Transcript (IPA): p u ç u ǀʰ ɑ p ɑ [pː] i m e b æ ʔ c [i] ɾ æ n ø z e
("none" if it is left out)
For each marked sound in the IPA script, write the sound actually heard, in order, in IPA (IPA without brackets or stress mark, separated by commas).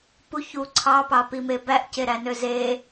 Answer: p, e